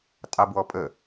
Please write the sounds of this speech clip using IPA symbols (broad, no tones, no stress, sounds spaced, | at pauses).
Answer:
tʼ ɑ b w ɔ pʼ ə